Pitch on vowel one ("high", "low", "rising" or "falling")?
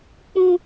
high